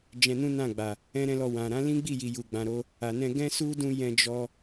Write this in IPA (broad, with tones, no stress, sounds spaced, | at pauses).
d͡ʒ ɛ̃˧ n ũ˦ n ã˦˨ ɡ͡b a˨ | ɛ̃˦ ɾ ɛ̃˦ l ɔ˧ w ã˨ ɾ ã˨˦ l ĩ˦ ɡ͡b i˦˨ j i˨ j u˨ ɡ͡b ã˨ ɾ o˧ | a˨ n ɛ̃˧ ɡ ɛ̃˦ s u˦ d ũ˧ j ɛ̃˧ d͡ʒ ɔ˧